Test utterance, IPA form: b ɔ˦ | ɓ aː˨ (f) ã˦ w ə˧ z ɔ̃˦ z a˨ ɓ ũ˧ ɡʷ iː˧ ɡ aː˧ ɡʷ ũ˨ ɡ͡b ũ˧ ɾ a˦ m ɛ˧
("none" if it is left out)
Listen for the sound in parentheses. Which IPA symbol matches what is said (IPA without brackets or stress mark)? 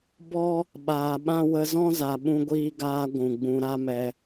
ɓ